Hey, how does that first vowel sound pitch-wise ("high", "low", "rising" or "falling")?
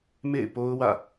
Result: falling